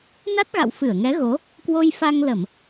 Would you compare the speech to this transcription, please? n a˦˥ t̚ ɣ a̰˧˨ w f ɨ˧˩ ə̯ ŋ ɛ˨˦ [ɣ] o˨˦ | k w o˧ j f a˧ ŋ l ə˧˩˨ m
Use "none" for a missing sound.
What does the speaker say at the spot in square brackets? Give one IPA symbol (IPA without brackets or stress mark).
ɣ